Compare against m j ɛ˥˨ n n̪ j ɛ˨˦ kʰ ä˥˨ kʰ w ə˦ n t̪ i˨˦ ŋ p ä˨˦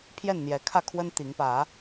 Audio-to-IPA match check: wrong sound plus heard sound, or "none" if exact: m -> pʰ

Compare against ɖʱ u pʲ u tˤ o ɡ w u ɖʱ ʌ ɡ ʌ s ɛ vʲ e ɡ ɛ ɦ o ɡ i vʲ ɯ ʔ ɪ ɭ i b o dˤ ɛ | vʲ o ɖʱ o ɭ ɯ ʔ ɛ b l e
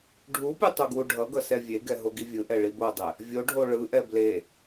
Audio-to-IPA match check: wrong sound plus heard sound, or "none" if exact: ɪ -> ɛ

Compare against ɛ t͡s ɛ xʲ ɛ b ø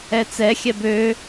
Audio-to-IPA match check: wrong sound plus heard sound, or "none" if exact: none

